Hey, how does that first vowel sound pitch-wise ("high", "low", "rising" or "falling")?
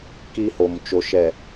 high